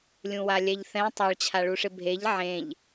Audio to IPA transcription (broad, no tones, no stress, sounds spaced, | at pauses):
lʲ ũ w a lʲ ɛ ʎ θ ɛ̃ tˤ a ɭ t͡ɕʰ a ɭ u ʂ ɪ bʱ e ʎ ʕ ẽ ʎ